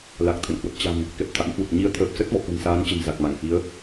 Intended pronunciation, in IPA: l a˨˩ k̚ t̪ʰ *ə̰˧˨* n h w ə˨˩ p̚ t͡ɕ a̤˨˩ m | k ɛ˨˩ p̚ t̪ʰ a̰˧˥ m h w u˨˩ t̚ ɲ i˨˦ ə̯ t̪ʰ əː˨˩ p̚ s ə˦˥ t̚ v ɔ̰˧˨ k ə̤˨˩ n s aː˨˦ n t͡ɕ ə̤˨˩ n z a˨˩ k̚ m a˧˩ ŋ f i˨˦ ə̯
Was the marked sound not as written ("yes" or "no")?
no